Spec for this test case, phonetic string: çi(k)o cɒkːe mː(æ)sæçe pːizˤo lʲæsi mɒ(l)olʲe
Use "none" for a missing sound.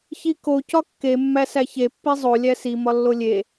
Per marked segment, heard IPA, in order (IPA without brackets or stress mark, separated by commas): k, æ, lː